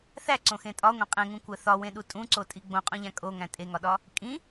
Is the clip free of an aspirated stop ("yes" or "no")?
yes